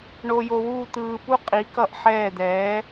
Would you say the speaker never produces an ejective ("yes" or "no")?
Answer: no